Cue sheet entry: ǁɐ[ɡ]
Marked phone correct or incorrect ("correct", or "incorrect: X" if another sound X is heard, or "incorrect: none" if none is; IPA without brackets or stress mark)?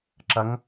incorrect: ŋ